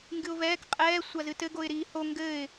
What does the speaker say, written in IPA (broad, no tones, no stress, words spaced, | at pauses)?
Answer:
ŋɡɨʊ̯vɛːk qʼɛː sʷazɨtɘɡoɪ̯ ɾiːho ŋɡɘːɪ̯